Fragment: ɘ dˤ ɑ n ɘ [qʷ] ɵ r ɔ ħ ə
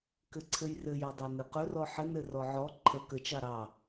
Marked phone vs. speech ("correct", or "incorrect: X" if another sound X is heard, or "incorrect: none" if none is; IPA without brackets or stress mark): incorrect: q